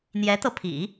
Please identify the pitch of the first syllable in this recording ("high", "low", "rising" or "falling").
rising